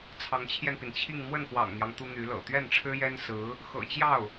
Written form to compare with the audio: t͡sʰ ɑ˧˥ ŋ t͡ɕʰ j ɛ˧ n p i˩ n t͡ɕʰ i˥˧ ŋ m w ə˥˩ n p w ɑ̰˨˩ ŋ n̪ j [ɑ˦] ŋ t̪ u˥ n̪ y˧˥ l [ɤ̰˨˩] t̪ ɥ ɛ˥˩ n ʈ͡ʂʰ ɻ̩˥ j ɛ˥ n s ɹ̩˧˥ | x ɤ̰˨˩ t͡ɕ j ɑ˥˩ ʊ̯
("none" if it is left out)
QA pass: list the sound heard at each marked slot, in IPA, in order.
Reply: ɑ˦, ɤ̰˨˩

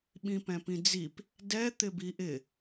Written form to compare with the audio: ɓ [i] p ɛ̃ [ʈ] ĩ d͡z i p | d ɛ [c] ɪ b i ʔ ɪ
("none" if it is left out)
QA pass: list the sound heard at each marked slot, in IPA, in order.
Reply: ĩ, p, t̪

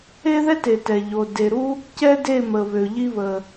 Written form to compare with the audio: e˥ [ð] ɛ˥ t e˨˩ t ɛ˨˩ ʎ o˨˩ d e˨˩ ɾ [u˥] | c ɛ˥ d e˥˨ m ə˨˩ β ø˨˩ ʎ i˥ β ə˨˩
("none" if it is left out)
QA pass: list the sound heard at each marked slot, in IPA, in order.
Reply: ð, u˥

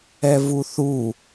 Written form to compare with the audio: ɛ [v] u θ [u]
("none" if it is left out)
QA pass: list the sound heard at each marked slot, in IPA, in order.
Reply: v, u

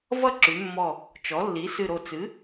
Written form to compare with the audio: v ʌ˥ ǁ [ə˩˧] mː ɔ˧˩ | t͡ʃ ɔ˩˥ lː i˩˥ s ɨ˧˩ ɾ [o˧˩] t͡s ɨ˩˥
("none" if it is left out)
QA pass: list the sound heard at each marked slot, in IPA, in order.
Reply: ʉ˩˧, o˧˩

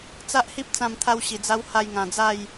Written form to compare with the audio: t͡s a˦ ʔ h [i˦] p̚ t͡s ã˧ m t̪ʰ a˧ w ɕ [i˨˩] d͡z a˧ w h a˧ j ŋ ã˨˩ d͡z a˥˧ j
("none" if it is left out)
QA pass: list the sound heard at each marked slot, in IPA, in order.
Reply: i˦, i˨˩

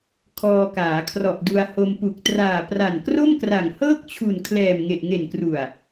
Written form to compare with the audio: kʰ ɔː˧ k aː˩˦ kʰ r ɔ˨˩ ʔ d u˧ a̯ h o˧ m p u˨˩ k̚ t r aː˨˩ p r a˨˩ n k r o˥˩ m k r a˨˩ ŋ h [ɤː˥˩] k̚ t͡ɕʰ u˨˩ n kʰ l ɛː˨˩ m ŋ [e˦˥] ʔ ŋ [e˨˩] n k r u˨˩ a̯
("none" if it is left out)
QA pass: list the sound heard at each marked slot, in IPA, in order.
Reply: ɤː˥˩, e˨˩, e˨˩

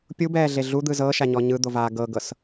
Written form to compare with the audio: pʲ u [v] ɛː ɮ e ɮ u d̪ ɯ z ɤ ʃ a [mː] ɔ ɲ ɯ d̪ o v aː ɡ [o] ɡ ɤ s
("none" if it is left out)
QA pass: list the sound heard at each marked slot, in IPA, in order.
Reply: b, ɲ, ɤ

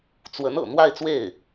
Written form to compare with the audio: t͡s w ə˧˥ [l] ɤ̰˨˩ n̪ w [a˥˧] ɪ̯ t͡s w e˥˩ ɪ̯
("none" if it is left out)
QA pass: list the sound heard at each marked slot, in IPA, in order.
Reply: n, a˥˧

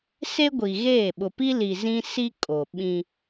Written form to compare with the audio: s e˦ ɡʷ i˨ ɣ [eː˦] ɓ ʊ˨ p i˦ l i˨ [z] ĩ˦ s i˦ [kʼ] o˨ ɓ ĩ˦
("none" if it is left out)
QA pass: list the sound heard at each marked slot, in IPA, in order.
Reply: eː˦˨, z, kʼ

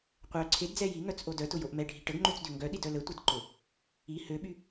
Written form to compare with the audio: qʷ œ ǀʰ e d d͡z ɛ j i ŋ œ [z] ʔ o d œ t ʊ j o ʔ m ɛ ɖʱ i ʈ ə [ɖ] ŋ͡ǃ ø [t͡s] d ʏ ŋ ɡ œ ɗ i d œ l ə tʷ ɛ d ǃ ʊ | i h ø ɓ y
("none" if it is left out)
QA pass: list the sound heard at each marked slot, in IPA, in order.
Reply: t͡s, ɡ, t͡s

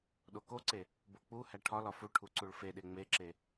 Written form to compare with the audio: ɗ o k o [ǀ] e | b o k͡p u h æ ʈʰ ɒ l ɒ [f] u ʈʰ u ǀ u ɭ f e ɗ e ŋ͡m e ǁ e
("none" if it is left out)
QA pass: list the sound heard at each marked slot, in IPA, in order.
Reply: ǀ, f

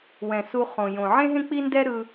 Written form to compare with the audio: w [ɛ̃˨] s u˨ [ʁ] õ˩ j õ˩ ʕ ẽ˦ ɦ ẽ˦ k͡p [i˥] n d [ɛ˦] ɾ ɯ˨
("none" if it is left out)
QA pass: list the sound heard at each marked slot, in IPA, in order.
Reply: ɛ̃˩, χ, i˦, ɛ˦

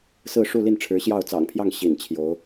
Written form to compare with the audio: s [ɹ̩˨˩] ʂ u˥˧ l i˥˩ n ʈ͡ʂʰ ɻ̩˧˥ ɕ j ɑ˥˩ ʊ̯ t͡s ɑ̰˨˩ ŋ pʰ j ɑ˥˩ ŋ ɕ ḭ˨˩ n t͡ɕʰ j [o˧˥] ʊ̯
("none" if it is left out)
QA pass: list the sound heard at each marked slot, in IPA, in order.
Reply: ɹ̩˥˧, o˧˥

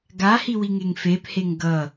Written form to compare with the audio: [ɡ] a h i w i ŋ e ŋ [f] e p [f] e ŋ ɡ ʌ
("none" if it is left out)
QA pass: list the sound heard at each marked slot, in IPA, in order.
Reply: ɡ, f, h

